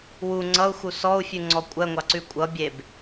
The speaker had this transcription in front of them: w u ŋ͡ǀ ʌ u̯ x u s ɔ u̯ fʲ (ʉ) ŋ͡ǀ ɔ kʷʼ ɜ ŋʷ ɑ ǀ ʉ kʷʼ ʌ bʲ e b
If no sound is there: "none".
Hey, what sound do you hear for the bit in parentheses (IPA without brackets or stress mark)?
ʉ